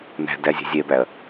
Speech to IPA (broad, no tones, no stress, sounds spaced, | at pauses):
n æ̤ d æ zʲ ɛ̤ zʲ ɛ b æ ɐ̯